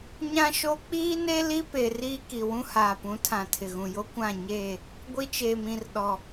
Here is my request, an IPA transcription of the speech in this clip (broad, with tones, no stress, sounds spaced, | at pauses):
ɲ ã˦ ʃ o˦ k͡p iː˦ n e˦ l i˦ p e˨ r iː˦ k i˨ w ũ˦ h aː˨ p ũ˨˦ tʰ ã˨ tʰ ɪ˨ ɣ ũ˨ j o˦ kʷ ã˦˨ ɲ eː˦˨ | ɡʷ i˦ t͡ʃ eː˨ m ĩ˨ r ɗ ɔ˨